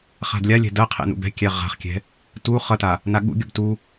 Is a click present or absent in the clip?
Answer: absent